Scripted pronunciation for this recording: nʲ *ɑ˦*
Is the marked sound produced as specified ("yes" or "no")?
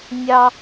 yes